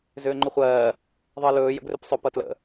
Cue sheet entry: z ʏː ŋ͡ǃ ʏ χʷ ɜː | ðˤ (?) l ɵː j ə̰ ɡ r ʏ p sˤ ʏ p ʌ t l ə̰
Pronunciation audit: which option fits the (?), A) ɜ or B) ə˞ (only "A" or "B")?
A